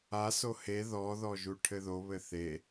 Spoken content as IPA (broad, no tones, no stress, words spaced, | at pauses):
aso he ðɔðɔ ʒuʈʰɘðoβɘ θe